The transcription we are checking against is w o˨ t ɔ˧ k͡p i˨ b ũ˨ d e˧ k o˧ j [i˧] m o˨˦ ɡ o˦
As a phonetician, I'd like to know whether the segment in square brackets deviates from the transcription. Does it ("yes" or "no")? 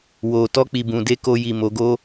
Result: yes